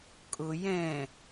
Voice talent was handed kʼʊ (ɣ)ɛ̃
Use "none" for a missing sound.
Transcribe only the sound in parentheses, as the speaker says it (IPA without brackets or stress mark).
j